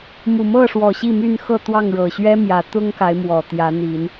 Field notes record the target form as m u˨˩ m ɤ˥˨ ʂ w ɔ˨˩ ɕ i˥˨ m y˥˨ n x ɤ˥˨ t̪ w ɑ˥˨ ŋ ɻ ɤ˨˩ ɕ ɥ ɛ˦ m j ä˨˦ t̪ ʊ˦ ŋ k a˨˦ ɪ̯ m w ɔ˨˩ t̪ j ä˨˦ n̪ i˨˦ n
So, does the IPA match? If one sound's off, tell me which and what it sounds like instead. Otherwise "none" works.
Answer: none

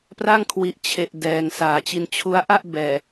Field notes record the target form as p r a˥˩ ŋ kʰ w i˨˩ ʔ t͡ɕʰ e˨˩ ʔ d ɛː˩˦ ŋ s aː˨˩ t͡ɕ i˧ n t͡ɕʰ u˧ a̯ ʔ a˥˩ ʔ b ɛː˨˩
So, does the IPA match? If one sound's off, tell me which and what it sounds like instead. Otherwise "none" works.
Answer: none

